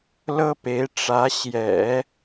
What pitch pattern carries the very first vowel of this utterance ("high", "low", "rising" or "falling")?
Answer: high